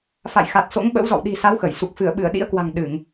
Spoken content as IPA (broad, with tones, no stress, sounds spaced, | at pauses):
f a̰˧˨ j x a˨˩ t̚ s o̰˧˥ ŋ ɓ ə̰˧˥ w z ɔ̰˧˨ w ɗ i̤˨˩ s a˨˦ w x ə˧˩ j s u˨˩ k̚ f ɨ˧˩ ə̯ ɓ ɨ˧˩ ə̯ ɗ ḭ˧˥ ə̯ k w a̤˨˩ ŋ ɗ ɨ˧˩˨ ŋ